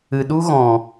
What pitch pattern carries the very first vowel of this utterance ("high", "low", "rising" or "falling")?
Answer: low